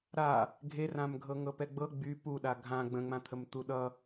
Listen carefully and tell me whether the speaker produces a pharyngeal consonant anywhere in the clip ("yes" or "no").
no